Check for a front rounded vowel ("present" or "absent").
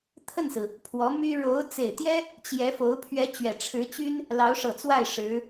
present